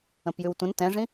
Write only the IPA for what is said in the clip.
ə̃ p j ʉ w tʷ ə̃ n t ɛ̃ ʐ ĩ

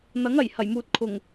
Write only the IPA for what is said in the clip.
n̪ ɐ˨˥ ŋ ɐ˨˩ j h ɐ˨˩ j m uː˨ t̚ kʰ ʊ˨˩ ŋ

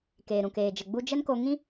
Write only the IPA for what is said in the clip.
k eː˨ ɾ ũ˨ k eː˨ d͡ʒ ə˨ ɡ͡b u˧ d͡ʒ ə˦ n k o˧ ŋ ĩ˦

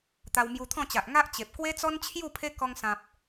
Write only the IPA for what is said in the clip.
t̪ a˧ w m j u˧ t̪ʰ ɔ̃˥˧ t͡ɕ a˨ ʔ ŋ a˦ ʔ t͡ɕ e˨ p̚ k w e˦ t͡s ɔ˦ n t͡ɕʰ j u˥˧ pʰ e˦ k ɔ˧ ŋ s ã˨ p̚

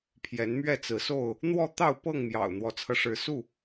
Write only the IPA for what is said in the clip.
pʰ j ɛ˨˦ n m ɥ ɛ˥˨ t͡s ɹ̩˨˦ s o˥˨ ʊ̯ | n̪ w ɔ˥˨ t̪ ɑ˥˨ ʊ̯ p ɤ˥˨ ŋ m j ɑ̰˨˩ ʊ̯ n̪ w ɔ˨˦ t͡sʰ ɤ˧ ʂ ɻ̩˨˦ s u˥˨

